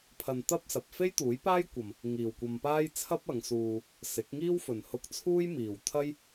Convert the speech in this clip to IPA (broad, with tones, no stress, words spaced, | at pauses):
pʰɐ˧nt̪ɐ˥p̚sɐ˨p̚ fe˥jt̪uː˨˥jpaː˥jkʷɐ˨m | ŋiː˨wkʷɐ˧mpaː˥j t͡sʰɐ˥p̚ɐ˨˧ŋsuː˧ | sɪ˨˥k̚ŋiː˥wfɵ˨n hʊ˧k̚ t͡sʰuː˥jmiː˨wt̪ʰɐ˥j